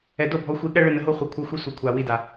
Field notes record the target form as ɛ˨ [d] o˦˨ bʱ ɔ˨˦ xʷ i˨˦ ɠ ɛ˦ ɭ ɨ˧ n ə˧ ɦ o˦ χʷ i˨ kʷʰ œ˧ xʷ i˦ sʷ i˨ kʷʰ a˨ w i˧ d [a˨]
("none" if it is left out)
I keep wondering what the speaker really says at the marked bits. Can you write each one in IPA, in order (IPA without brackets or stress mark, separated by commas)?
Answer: d, a˨